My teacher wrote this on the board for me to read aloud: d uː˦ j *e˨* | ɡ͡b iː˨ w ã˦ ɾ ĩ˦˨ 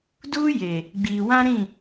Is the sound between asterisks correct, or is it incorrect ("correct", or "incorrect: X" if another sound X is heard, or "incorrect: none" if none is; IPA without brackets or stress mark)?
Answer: correct